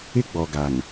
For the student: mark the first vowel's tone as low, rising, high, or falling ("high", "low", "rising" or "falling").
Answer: high